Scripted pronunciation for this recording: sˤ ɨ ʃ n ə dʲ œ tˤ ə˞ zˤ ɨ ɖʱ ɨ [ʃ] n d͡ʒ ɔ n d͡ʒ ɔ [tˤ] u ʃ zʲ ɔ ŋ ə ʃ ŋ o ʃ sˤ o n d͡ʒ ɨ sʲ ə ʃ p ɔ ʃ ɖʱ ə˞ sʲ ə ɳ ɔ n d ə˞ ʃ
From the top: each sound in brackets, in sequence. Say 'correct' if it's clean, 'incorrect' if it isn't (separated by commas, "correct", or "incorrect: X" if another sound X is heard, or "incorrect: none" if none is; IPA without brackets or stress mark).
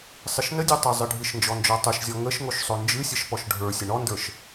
correct, correct